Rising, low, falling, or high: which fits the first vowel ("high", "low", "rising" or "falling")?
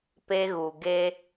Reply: high